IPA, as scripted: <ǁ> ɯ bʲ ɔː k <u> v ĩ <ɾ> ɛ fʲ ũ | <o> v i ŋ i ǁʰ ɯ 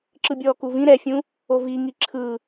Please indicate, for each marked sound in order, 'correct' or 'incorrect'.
correct, correct, correct, correct

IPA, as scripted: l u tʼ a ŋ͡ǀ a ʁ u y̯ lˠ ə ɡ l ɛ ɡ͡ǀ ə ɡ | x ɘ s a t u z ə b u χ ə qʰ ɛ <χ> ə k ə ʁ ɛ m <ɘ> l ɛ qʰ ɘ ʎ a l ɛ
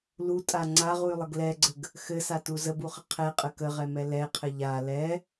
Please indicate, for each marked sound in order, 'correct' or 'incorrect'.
incorrect: qʼ, incorrect: ɛ

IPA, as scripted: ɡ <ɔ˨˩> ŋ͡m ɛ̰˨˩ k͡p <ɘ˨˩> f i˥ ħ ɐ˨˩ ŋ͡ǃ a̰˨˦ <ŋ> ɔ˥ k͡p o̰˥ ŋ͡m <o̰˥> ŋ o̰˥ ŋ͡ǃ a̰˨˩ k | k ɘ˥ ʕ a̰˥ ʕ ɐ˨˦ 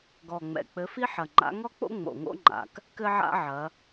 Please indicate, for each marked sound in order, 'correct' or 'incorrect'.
correct, incorrect: ɘ˨˦, correct, incorrect: o̰˨˩

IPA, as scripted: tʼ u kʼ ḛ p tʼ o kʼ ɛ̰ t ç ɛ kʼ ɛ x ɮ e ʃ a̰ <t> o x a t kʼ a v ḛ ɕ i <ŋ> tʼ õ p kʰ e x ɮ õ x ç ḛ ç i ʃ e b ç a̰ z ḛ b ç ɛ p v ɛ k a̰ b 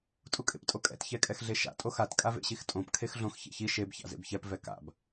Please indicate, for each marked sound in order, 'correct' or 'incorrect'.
incorrect: tʼ, incorrect: x

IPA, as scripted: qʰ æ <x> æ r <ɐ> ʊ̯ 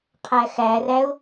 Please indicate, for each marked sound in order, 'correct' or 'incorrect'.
correct, incorrect: æ

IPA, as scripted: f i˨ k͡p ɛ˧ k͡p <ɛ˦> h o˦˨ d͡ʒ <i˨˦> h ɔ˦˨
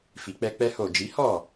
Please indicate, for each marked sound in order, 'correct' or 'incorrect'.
correct, correct

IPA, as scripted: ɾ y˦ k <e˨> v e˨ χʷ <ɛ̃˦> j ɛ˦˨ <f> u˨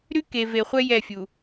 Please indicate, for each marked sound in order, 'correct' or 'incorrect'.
correct, incorrect: ɛ˦, incorrect: fʲ

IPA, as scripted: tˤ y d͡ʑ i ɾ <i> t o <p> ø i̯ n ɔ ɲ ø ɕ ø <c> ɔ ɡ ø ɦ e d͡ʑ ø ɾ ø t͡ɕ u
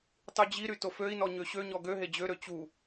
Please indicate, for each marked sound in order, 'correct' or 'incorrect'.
incorrect: y, incorrect: f, incorrect: ɲ

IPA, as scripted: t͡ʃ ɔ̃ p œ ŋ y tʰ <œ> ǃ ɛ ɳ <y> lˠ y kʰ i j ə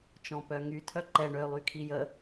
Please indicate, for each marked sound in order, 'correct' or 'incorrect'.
correct, incorrect: ø

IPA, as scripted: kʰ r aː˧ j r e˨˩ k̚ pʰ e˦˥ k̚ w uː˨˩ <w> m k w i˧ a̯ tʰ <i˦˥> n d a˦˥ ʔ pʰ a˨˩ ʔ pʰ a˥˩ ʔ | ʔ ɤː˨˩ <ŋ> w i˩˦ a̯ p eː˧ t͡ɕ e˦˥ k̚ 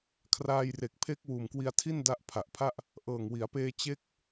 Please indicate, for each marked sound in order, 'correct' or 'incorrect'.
incorrect: none, incorrect: i˥˩, correct

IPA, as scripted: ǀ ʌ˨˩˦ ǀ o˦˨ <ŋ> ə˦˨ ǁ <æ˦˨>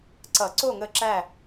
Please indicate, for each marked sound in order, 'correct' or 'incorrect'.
correct, correct

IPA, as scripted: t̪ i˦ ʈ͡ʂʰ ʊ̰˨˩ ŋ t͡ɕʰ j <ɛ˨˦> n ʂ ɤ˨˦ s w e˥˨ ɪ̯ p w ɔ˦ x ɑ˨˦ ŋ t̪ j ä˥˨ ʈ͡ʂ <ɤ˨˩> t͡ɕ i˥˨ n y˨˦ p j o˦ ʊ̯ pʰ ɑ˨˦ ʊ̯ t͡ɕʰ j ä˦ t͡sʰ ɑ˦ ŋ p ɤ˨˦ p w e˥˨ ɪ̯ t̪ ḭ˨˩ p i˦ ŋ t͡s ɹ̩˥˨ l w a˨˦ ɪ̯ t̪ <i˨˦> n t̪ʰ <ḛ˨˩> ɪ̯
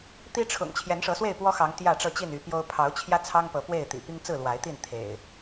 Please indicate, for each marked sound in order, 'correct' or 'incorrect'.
correct, incorrect: ɤ˥˨, incorrect: i˥˨, correct

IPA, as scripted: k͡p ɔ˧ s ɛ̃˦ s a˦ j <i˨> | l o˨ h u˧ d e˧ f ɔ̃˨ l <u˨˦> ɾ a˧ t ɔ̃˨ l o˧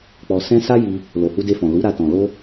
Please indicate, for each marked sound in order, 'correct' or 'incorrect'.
incorrect: i˧, correct

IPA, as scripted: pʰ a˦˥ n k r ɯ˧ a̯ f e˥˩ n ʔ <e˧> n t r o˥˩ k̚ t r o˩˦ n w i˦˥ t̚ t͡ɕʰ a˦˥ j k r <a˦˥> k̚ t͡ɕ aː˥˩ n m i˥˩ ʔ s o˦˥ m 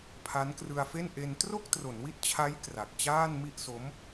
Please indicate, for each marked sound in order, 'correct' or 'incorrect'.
correct, incorrect: a˨˩

